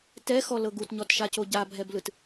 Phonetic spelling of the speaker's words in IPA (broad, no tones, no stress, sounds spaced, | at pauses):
t ɛ x ɔ l ɤ ɡ u t ɲ ɔ t ʃ a c o ɟ a bʱ ɛ b l ɯ t